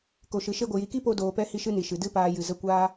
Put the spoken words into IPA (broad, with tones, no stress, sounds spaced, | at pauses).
k o˨ ʃ ɨ˨ ʃ e˦ ɡʷ ɨ˨ j i˨ k i˦ p o˧ d oː˧ p ɛ˦ h i˦ ʃ ɨ˦ n i˨ ʃ ɨ˨ d ɨ˦ p aː˧ j ɨ˨ z ə˦˨ kʷ aː˦